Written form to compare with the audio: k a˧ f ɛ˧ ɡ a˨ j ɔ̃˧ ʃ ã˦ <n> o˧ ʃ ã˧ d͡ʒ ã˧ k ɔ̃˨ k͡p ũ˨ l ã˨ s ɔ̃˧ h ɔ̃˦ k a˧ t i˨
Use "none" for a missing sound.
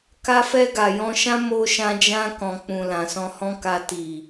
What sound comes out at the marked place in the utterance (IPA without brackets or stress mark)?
m